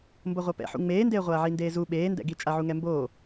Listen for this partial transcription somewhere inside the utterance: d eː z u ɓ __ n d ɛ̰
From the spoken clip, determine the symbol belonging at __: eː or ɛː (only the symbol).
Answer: eː